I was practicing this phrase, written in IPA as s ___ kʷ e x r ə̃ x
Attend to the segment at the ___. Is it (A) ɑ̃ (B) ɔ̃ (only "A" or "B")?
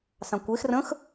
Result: A